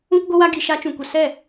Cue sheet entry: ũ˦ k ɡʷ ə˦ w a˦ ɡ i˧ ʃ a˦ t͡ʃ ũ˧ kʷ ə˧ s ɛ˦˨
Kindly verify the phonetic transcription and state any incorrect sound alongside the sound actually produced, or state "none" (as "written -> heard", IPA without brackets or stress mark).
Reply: none